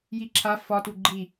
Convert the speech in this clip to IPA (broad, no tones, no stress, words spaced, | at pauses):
jiǁʰa fɒt uɡ͡ǃi